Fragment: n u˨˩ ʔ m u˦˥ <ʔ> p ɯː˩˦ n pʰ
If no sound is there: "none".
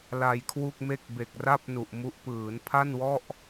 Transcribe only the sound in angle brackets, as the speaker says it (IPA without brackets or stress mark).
ʔ